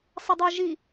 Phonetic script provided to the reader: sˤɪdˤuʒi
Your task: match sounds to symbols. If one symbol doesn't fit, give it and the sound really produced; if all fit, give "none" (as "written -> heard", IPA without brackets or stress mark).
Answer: none